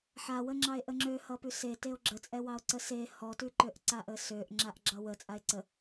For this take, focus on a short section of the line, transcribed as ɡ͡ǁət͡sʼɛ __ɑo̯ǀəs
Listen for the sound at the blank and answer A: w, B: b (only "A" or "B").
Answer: A